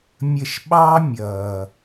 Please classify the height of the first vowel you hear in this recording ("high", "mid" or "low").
mid